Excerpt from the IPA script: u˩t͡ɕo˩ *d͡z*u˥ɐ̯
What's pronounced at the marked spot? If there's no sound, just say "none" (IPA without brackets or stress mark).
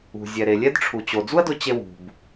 d͡z